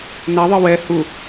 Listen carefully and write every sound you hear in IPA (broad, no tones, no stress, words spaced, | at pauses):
naðˤɨ wɛ hu